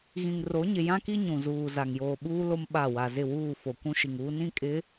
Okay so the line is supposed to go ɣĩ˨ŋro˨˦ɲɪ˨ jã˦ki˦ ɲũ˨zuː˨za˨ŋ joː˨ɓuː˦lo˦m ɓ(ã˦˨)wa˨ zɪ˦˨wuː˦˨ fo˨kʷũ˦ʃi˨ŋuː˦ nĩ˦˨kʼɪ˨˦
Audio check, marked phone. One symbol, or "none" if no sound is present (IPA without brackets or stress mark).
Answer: a˦˨